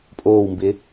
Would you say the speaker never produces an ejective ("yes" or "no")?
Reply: no